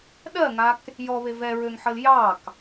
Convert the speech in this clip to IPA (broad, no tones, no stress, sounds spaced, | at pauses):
ɗ ɜ ŋ a k | j ɔ β e v ɛ ɹ ø ŋ ħ ə l j ɑ k